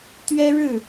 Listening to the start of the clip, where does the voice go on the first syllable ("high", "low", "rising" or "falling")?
high